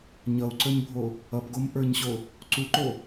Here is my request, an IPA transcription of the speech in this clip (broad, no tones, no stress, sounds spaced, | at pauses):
ɲ ʌ u̯ ǀ ə˞ ɲ bʱ o | ʌ p ɡ o m ʔ ə˞ ɲ ɕ o | ǀ u ǃ o